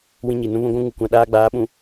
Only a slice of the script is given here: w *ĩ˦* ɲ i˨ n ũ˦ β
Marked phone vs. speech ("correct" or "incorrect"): correct